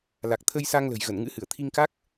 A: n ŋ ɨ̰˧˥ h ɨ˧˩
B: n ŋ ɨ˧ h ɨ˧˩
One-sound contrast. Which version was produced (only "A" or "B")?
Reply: A